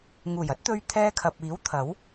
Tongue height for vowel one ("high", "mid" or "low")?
high